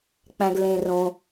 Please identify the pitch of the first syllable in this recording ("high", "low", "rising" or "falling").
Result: low